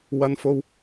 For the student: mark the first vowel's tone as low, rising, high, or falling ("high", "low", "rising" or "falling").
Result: high